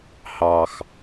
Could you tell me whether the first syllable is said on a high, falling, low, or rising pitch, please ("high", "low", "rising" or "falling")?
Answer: low